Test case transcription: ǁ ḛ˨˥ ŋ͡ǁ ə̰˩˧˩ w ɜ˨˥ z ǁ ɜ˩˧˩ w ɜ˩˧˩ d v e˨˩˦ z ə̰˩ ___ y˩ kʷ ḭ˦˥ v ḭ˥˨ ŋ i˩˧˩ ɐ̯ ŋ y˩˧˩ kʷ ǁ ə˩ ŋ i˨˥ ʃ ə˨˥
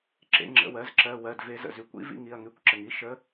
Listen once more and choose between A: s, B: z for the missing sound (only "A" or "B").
B